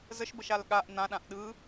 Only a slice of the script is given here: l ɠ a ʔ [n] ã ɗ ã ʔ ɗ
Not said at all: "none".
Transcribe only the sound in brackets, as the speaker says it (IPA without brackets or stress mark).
n